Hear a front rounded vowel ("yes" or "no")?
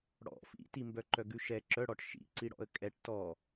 yes